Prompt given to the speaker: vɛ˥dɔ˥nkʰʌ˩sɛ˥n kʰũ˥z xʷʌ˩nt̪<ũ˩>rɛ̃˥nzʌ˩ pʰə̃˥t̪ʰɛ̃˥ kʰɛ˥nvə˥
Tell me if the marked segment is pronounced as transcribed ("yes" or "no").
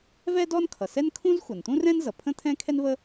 no